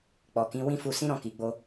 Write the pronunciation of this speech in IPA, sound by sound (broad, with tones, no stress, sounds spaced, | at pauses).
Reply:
k͡p ɔ˨ k ĩ˨˦ w ĩ˦˨ f u˧ s ĩ˦ ɾ ɔ̃˦˨ k i˨ ɡ͡b o˧